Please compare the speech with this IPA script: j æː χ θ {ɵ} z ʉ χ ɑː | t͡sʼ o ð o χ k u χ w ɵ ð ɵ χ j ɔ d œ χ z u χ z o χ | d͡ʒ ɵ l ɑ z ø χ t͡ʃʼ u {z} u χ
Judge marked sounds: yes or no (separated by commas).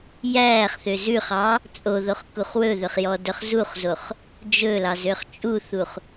no, no